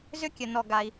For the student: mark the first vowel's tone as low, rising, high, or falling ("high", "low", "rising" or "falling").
high